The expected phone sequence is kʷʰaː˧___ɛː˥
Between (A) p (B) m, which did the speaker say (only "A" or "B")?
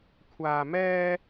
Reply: B